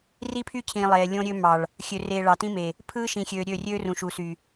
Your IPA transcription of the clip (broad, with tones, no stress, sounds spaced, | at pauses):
r i˦ pʰ y˦ cʰ ĩ˨ lˠ eː˨ lʲ õ˦ ɾʲ ø˦ m ɑ˨ ɭ | xʲ ø˨ r eː˨ ɭ ɑ˨ t ĩ˦ m e˨ | pʰ ɯː˦ ʃ ĩ˨ xʲ øː˨ ɾʲ ø˦˨ rʲ øː˦ r ũ˨ ʃ u˨ s y˨